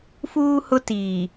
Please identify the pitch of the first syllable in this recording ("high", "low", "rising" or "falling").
high